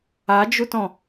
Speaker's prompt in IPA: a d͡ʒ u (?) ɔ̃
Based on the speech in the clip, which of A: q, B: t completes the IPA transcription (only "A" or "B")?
B